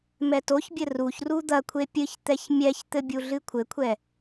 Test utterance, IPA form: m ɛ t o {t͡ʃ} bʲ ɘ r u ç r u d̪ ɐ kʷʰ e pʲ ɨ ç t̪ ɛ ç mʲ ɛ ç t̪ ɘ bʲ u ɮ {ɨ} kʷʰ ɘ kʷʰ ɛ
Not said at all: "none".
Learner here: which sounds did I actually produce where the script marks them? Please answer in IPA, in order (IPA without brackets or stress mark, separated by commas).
ç, ɨ